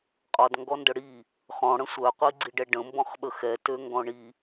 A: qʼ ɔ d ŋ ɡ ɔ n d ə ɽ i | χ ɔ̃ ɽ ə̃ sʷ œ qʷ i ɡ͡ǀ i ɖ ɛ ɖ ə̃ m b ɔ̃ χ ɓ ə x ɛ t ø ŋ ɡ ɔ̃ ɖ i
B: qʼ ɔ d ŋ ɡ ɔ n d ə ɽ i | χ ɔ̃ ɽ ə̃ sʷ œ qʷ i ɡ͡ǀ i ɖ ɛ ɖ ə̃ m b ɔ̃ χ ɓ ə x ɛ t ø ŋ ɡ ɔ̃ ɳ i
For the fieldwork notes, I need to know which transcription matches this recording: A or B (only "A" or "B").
B